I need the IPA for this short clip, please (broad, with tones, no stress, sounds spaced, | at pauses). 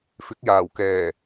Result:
f ɪ˨˥ k̚ j aː˨˩ w k ɛː˨˩